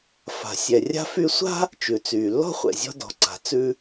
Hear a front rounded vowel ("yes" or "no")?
yes